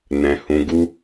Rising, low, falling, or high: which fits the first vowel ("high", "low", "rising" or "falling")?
low